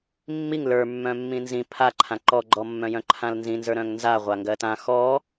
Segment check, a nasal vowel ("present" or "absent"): present